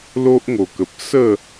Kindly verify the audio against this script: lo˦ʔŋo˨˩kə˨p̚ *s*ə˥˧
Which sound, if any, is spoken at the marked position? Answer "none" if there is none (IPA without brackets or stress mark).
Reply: s